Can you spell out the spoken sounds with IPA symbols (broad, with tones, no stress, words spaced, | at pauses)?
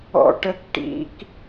ɔ̰˦ʈə˦k ʈḭ˦k